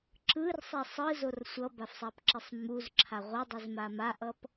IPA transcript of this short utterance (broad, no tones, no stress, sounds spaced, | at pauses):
ǁ ɯ r sˤ ɛ sˤ ɯ z o r sʷ ʌ b a f sˤ a p ǁ i sˤ m u z ǁʰ a ʁʷ ʌ dˤ ɯ z m a m a ʔ ʌ p